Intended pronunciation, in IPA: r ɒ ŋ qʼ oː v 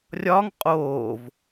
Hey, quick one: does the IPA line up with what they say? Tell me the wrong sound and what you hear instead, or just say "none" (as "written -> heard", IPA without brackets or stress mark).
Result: r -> rʲ